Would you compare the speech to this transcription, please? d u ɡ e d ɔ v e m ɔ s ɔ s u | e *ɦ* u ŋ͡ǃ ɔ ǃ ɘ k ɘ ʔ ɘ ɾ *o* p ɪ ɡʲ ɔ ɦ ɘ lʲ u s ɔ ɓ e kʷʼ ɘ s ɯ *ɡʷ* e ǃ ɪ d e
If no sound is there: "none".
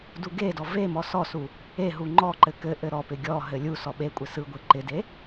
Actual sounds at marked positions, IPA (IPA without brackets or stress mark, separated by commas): ɦ, ɔ, ɡʷ